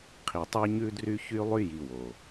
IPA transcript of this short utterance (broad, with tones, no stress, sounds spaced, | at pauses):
qʰ i˨ tˤ i˦ ɲ ʉ˦ d r y˦ ç y˦ lˠ y˦ j i˨ w o˨